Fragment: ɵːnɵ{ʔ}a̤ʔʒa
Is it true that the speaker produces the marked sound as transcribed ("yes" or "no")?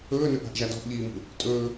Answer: yes